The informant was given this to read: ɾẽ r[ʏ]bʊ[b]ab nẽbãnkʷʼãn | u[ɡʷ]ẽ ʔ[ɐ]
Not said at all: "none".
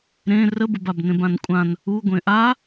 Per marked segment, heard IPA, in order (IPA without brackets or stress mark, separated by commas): ə, b, ɡʷ, a